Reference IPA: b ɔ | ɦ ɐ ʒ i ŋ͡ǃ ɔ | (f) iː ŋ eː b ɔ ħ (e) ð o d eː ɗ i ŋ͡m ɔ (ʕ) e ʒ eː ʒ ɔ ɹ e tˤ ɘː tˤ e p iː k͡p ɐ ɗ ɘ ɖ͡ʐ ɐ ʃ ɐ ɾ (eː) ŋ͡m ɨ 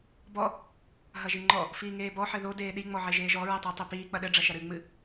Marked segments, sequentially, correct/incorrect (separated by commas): correct, incorrect, correct, incorrect